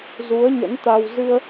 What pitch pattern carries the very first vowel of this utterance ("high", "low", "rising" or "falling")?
rising